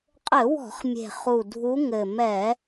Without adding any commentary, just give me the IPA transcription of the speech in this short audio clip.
qʼ ɘ˧˩˧ w ɔ̤˧˩˧ χ mʲ e̤˨˩ χ u˨˩ dʱ u˨˦ ŋ ɘ˨˩ m ɛ˧˩˧

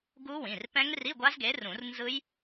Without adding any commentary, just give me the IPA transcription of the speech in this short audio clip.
ɡ u˦˥ w ĩ˩˧˩ r p ɛ̃˦˥ ŋ r i˧˥˧ ɡʷ a˦˥ z ɡ e˨˥ r ũ˨˩˦ r n z ɯ˦˥ j

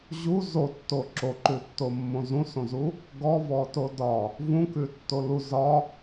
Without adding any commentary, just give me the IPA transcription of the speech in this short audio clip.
ʑ u z o tː o ǁ o ǃ ʉ tː o mː õ z ũ s õ z u | ɡ ɔ v ɔ t o d ɒ | v ũ k ʉ tː o l u z ɒ

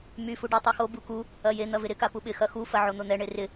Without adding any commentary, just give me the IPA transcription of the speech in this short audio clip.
m y f u ɖ ʊ tˤ y x o b u k u | ɐ j e n̪ ɐ v ɪ ɾ ɪ k a p u ɓ ɪ x ɐ x u f ɐ ʕ o n̪ ʊ n̪ ɛ ɳ e r ɪ

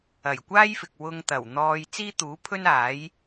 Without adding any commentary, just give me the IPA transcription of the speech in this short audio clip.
ɐ˨˩ j kʷ aː˥ j f ɪ˨ k̚ w ʊ˧ ŋ t̪ ɐ˨˩ w n̪ ɔː˧ j t͡s iː˥ t̪ uː˨˥ pʰ ɵ˥ n aː˨˥ j

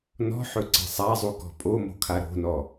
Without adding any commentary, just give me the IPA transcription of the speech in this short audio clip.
n ɔ̤ ħ ɵ ǀ ɛ̤ sˤ a zˤ u k ɔ̤ pʼ o m o̤ kʰ a ɾ o̤ n ɔ

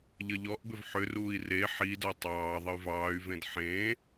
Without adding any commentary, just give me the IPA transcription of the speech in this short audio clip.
ʎ ə ʎ ɔ ʔ b ʏ v ħ ʏ r uː i̯ r e ħ i d ɔ tˤ ɑː ðˤ ə y̯ v ɑː y̯ v ẽ d ħ ẽː

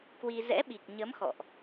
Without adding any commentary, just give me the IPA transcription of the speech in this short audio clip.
k w i˧ z ɛ̰˧˥ ɓ i˨˩ k̚ ɲ ə˨˦ m x ɔ̰˧˨ ʔ

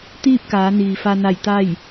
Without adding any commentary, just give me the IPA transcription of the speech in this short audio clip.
t̪ iː˥˨ p̚ k aː˩˧ n iː˩ f a˧ n a˧˩ j t̪ a˥˨ j

